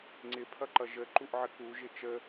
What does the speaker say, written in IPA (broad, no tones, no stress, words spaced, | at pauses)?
ŋ͡ǀɪpʰʌǃʌ ʒəǃuʔʕə kuʒɪ t͡ʃə